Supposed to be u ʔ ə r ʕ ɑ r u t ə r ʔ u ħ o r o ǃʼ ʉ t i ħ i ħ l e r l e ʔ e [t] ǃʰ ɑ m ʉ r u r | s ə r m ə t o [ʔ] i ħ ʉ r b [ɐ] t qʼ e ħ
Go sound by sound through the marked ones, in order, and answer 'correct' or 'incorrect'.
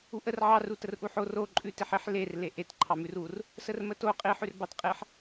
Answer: correct, incorrect: qʼ, incorrect: ɑ

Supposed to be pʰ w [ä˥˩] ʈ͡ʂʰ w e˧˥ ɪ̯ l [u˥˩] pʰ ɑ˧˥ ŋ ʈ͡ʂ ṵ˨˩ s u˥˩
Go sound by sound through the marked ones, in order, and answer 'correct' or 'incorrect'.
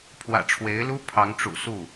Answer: incorrect: ä̰˨˩, incorrect: u˥

